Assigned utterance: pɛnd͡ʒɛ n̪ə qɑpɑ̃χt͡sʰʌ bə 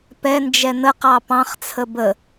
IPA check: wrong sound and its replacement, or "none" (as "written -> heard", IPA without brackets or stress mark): ʌ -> ə